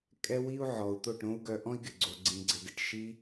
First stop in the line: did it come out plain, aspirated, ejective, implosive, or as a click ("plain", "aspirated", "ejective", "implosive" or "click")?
ejective